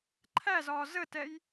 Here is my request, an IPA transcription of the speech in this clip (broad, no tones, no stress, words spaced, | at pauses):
ǃʰæzɒː zətɛj